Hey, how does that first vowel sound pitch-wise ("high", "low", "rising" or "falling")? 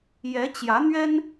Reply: rising